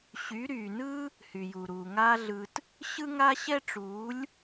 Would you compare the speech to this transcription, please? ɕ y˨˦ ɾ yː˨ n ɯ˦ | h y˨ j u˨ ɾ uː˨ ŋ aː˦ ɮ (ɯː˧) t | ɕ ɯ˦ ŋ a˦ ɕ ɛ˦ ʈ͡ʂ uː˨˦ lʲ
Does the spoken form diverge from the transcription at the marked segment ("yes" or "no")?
yes